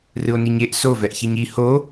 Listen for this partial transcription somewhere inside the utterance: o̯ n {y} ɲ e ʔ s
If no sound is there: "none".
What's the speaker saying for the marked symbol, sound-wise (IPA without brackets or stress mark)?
i